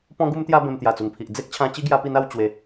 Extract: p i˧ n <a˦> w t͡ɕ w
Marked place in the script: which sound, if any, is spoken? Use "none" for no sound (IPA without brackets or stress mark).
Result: a˥˧